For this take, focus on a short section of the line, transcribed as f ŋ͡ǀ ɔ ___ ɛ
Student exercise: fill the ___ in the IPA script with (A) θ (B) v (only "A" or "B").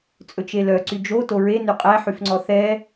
A